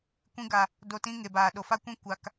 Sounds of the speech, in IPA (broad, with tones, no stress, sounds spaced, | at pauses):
kʷ ĩ˧ ɡ a˨ | d o˨ t ĩ˧ ŋ e˨ b aː˨ ɗ o˨ f a˦ kʷ ĩ˦ kʷ a˧ k